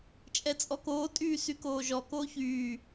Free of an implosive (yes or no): yes